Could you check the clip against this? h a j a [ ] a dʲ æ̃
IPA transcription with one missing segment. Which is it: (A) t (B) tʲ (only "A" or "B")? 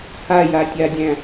B